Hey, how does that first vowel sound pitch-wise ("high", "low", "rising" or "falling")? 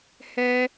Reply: high